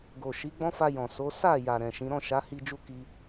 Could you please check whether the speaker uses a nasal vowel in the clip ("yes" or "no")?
yes